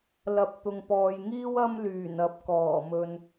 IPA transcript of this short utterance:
lɐ˨p̚ t̪ʊ˨ŋpɔː˨jŋiː˥w ɐ˥m lyː˨˩nɐ˨˥p̚kɔː˨˩mɵ˨n

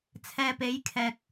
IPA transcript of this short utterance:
t͡sʰɛː˧pe˨˥jkʰɛː˨k̚

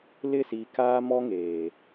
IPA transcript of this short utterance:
lɪ˦˨si˨kaː˦ mɔ˦ŋeː˨

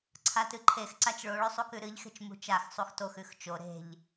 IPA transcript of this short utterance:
ǀʰatɨǃʰexǀat͡ʃ ɭoɭɵ sˤukʉɾɨʎxe̤t͡ʃ mṳt͡ʃaxsˤux toxʉx t͡ʃo ɾe̤ʎ

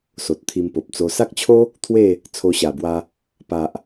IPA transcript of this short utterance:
so˨t̚t̪ʰi˧mpo˨p̚t͡so˧ sa˦k̚t͡ɕʰo˦ | t̪ʰwe˥˧ | t͡sʰo˧ɕa˨˩bwa˧ | pa˨ʔ

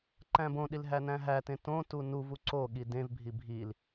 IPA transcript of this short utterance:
ǃæ̃bõɗil ɦænæ̃ɦætẽ tõ tunuvu ǀo ɠidẽvbʱi bʱil

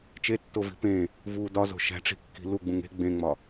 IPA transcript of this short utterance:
t͡ʃetːovi̤ pẽ | vu dɒzo̤ ʃæ̤ʈ͡ʂi̤kːi̤ luɡ͡bũŋ e̤ ɡ͡bẽŋ͡mɒ

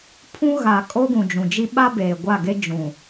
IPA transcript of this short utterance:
pʰũ˦ɣa˨ kʼo˦ɡũ˨d͡ʒũ˨d͡ʒi˦ ɓa˦beː˨ɡʷa˦˨ ɡe˦ d͡ʒũ˨

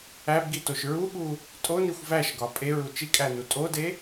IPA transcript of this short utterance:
æbɡitoʃ ɹuɠu | tʼonixʷ væʃɡɒ pʼeɹu t͡ʃikʼænu tʼode

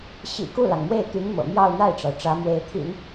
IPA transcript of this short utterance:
ɕḭ˨˩ ku˥˩lɑ˩ŋmwe˥˩ɪ̯t̪y˧˥n mɤ̰˨˩ mjɑ˥˧ʊ̯n̪a˥˩ɪ̯ʈ͡ʂɑ˩ʊ̯ ʈ͡ʂä˧˥mwe˧˥ɪ̯ t̪ʰḭ˨˩˦n

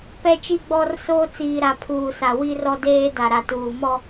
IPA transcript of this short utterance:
pɛ˦t͡ʃi˦ɡ͡bɔ˦rsoː˦ t͡siː˨ɾa˨ pʰuː˨sa˨ wi˦rɔ˦deː˦ da˨ɾa˨tuː˨ mɔ˦

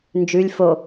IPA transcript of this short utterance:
nd͡ʒʉlʲ fo

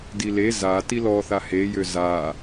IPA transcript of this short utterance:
dile za tilɔθa hejø za

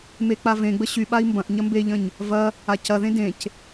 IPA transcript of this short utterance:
mek͡pavẽɡ͡bə ɕyɓai̯ mbɐ̃ʔ ɲɐmbeʎə̃ɲ | vɐ | acɐðẽ dẽc

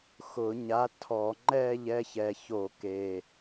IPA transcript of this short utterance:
xʊ˧˩˧ɲa˨˥tʰɔ˧˩˧ ŋ͡ǃɛː˦˨ʎɛ˦˨çɛ˨˩ço˧˩˧ keː˨˩

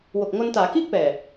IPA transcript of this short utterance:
wo˨˩k̚ ŋo˧ntaː˩˦ kiː˥˩k̚pɛː˨˩

